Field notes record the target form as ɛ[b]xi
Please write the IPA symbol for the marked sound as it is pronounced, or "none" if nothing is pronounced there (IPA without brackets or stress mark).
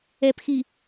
p